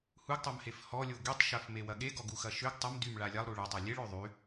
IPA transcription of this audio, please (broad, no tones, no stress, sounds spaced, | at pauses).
h u ɡ tˤ o m h e f h ɔ lʲ o ɡ y tˤ ʃ ɐ f m e w ɐ ɠ e ɡ ɔ ɡ u x ɐ ʃ ø ɡ tˤ ɐ m d y m ɭ a lʲ a lˠ ɾ u ɭ ɐ tˤ ɐ lʲ e ɭ ø ðˤ y